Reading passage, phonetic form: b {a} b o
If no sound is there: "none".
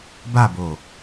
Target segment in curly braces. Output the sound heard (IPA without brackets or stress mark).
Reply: a